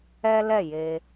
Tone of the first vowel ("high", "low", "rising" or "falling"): high